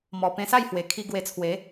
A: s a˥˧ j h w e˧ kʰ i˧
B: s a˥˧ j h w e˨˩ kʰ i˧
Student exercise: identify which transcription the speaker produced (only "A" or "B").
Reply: B